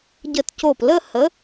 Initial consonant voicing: voiced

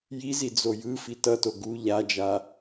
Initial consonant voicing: voiced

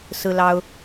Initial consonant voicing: voiceless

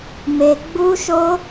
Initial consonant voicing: voiced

